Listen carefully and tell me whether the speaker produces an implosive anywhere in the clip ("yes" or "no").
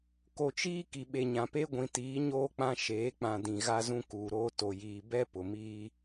yes